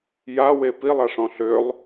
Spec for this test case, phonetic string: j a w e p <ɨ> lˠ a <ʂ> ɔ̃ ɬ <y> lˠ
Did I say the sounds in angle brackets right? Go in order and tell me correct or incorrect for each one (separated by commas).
incorrect, correct, incorrect